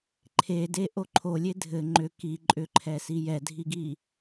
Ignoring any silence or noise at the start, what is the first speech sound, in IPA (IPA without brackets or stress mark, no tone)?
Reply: ǃʰ